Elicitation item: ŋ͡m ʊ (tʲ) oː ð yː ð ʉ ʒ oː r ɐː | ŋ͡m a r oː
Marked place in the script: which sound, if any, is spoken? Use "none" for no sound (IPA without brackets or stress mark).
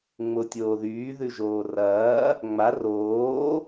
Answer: tʲ